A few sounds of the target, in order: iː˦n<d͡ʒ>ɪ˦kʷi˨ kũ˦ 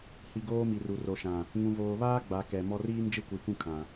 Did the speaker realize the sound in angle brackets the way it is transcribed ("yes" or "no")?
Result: yes